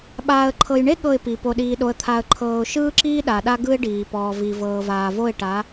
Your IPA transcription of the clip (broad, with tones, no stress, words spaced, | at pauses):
ɓaː˨ə̯ǃʰɤ˨jɳe˦ ɠɤ˦˨ɪ̯pi˨ po˨ɗiː˨ ɗo˨ə̯t̪ʰa˨ə̯ǃʰɤː˨ʊ̯ ʃɯː˦ǁiː˦ ɗa˨ɗa˦ ɡɯ˦ɪ̯ɖiː˨pɔː˨ vi˨vɤː˨vaː˨vo˦˨ɪ̯ ʈa˨˦